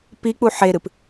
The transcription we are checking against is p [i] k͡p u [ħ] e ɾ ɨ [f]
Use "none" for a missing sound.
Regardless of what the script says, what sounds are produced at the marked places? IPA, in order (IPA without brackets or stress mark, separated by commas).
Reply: i, ħ, p